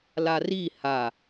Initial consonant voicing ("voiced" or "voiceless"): voiced